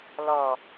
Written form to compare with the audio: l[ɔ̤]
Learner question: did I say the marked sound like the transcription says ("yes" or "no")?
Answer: no